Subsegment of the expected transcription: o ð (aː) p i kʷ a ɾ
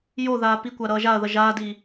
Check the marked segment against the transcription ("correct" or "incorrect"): correct